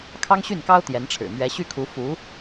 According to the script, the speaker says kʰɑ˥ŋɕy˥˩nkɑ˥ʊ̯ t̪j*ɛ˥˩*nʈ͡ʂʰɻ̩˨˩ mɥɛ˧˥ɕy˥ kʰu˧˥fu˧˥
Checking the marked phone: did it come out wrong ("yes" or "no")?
yes